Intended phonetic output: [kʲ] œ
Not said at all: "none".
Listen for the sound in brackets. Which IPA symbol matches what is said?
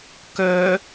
k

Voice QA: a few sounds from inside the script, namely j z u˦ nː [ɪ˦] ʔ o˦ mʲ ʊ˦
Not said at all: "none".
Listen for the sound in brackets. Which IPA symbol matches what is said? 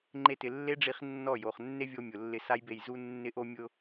ɪ˦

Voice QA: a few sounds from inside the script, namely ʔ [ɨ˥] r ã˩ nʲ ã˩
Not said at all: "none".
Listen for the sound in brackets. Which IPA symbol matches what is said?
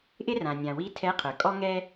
ɪ˥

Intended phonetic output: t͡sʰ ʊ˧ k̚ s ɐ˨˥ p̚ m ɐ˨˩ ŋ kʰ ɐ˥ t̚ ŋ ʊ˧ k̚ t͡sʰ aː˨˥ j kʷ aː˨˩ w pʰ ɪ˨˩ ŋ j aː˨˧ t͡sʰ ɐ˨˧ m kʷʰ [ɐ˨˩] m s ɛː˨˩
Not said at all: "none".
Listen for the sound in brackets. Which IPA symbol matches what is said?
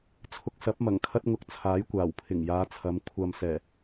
ɐ˧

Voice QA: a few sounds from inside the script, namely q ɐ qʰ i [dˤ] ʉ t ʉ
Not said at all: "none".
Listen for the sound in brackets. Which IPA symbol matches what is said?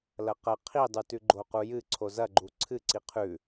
dˤ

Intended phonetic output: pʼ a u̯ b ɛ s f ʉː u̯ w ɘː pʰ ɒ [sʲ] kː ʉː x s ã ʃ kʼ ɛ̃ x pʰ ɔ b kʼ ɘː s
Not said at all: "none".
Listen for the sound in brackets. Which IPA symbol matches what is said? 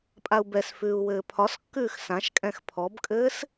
s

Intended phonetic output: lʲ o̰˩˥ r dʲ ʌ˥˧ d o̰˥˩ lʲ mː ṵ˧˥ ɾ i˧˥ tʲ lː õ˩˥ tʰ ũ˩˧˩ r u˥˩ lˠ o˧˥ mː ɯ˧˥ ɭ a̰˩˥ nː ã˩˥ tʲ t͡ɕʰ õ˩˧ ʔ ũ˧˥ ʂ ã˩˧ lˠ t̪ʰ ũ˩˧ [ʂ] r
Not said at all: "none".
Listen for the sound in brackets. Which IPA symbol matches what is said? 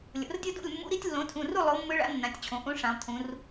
none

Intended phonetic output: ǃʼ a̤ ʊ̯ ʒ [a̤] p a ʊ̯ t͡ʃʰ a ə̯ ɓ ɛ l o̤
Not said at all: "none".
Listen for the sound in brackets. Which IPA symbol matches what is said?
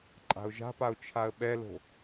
a̤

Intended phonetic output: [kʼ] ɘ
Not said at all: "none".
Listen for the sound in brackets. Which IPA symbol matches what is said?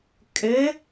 kʼ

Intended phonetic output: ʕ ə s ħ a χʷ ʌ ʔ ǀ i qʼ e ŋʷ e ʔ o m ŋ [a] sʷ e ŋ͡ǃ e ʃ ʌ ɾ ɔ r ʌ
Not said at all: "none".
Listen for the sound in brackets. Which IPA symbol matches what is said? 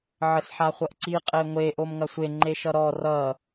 ɐ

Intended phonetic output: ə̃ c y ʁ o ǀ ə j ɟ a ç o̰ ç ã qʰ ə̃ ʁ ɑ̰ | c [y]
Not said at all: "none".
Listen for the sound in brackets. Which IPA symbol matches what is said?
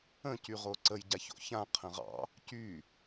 y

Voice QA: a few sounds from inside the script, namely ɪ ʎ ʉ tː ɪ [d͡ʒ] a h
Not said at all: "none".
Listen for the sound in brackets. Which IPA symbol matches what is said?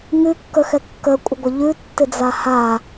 d͡z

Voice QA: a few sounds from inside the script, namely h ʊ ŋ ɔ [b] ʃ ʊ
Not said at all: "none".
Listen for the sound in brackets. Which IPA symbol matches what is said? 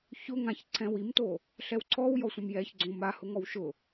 w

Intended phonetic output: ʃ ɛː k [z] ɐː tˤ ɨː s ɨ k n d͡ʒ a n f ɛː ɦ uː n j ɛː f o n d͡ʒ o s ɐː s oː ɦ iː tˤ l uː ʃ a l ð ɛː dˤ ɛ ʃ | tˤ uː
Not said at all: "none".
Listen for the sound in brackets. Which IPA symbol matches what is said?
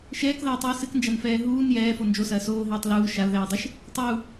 ð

